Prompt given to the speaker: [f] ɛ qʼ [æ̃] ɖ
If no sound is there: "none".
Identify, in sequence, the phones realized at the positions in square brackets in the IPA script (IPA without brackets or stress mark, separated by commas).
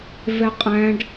v, æ̃